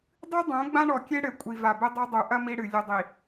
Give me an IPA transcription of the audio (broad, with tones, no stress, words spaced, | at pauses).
dˤɨ˦dˤõ˨˦ ɡ͡bã˦ɳɔ˨kʲe˦ɽɘ˨ kʷʼi˨va˨bɘ˦ dˤɐ˦ dˤu˨ʔɐ˦ mi˦ɽɨ˨ lʲɘ˨dˤi˨